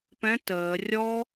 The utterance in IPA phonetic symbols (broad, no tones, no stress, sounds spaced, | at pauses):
p ɛ̃ t əː rʲ ɔ